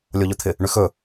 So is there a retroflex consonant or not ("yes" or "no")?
yes